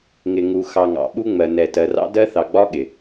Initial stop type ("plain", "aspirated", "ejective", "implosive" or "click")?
implosive